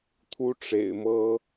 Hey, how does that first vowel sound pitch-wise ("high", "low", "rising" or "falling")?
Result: high